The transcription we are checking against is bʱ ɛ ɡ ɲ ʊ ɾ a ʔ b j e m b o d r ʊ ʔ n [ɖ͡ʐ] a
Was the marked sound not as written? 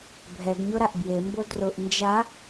yes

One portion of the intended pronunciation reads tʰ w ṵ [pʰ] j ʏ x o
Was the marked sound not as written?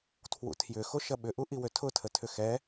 yes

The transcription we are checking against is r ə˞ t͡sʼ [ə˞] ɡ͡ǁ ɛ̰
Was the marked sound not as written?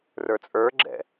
no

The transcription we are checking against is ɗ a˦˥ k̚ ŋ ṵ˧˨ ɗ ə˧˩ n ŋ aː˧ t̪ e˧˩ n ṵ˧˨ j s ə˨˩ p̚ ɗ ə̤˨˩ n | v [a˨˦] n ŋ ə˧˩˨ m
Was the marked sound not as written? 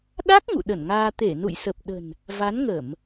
no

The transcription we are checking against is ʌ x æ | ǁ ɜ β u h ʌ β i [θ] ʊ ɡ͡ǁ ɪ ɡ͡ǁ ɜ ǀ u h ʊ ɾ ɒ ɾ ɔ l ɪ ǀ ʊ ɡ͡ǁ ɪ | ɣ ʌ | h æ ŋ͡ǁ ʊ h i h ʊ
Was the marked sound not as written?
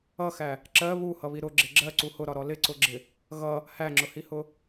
yes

